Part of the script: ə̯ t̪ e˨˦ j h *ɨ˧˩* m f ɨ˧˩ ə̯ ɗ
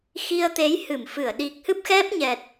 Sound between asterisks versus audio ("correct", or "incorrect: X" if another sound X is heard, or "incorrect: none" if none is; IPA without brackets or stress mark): correct